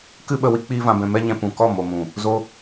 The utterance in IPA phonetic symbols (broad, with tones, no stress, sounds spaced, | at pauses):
k ɨ˦ ɓ ə˧ w i˦ k͡p iː˦ v ã˧ b ɛ̃˧ m ɛ˦ ɲ ɛ̃˧ p ũ˨ k ɔ˦˨ m o˨ m ũ˨ | z o˧